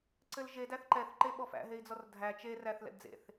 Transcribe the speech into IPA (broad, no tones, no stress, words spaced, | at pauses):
ǀɘlʒe dæθǃɛθ ǃeɓɔfæ̰ɦei̯ d͡zɔrdʱæ t͡ʃe ræθlɛ̰dd͡zḛθ